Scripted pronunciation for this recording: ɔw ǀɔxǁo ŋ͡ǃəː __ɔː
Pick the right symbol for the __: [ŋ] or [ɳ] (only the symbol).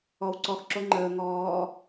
ŋ